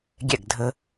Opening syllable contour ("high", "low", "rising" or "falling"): falling